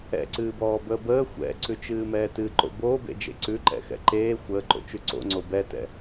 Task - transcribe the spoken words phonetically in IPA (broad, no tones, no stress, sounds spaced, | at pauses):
ɛ̰ ǀ ɨː b ɔː b əː b əː xʷ ɛ̰ ǀ ʉ t͡ʃ ɨː m ɛː t ɨ ǃ o̰ b oː b ḛ d͡ʒ ḛ ǀ ʉ ǃ ɛ̰ x ɛ̰ ǃ eː xʷ əː ǃ o̰ t͡ʃ ʉ ǀ o̰ ŋ͡ǀ o b ɛ t ɛ̰